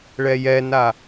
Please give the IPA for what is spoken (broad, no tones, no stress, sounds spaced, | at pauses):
ɭ ɛ j ɛ n a